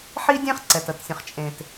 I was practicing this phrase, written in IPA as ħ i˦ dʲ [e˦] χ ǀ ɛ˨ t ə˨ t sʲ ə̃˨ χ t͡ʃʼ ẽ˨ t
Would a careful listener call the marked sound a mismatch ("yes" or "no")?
yes